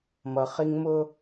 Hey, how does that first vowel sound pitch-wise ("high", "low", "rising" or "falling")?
low